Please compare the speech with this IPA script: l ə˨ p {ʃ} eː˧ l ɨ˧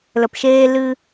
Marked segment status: correct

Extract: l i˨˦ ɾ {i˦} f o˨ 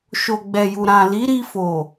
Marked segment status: incorrect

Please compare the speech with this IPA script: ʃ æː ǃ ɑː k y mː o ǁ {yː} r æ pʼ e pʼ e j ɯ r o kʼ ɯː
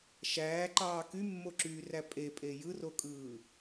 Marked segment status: correct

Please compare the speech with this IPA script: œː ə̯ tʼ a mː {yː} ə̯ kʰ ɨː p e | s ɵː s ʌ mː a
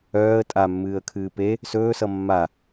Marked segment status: incorrect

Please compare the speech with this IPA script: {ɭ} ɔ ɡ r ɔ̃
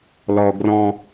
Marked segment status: incorrect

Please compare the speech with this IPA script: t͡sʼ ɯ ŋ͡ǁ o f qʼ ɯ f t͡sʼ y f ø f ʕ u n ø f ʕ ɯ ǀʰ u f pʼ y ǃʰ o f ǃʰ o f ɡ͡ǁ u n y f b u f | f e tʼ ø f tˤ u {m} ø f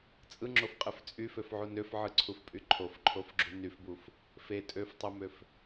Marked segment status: correct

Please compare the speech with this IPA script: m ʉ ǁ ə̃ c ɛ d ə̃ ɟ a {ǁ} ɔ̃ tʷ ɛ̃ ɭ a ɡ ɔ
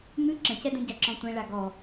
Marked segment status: correct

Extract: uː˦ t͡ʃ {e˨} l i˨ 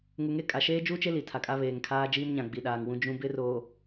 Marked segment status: incorrect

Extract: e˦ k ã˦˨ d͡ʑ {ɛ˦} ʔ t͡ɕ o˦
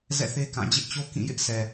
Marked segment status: incorrect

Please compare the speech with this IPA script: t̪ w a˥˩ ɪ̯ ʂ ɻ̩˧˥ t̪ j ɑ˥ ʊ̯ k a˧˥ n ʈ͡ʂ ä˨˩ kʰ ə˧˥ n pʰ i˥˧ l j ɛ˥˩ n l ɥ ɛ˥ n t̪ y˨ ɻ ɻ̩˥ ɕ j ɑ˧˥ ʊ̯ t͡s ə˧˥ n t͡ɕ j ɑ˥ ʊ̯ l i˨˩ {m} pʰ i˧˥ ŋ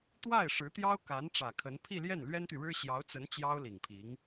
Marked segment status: incorrect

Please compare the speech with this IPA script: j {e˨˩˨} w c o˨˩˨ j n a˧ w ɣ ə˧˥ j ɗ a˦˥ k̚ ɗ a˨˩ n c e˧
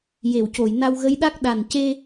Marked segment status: correct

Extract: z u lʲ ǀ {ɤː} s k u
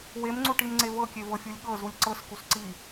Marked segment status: incorrect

